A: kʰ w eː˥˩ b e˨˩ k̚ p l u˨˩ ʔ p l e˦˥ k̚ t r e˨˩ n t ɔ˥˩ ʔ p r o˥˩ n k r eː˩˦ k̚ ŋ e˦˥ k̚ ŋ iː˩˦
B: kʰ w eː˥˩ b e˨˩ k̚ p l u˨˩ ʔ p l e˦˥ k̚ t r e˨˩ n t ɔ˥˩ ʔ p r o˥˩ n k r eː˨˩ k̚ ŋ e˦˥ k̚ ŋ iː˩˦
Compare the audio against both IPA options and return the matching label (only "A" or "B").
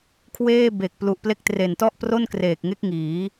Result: B